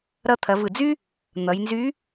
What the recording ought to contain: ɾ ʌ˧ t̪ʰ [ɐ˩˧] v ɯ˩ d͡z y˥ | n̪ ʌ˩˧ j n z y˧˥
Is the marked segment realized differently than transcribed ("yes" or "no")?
no